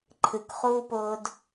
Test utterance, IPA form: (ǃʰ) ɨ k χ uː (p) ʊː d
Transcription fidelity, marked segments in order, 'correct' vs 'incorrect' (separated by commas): correct, correct